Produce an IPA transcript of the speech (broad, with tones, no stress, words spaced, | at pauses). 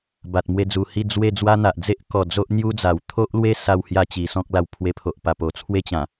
ba˨t̚mwe˧d͡zu˨˩hi˥˧ d͡zwe˥˧ d͡zwa˦n̪a˨ʔ d͡ze˦ʔkɔ˨˩ d͡zo˦ʔn̪ju˦d͡za˨˩w t̪ʰo˦ʔlwe˦ sa˥˧whja˥˧t͡ɕi˨˩sɔ̃˦k̚ la˧wpʰwe˧pʰo˨ʔpa˨˩ po˨˩t͡sʰwe˦t͡ɕã˨˩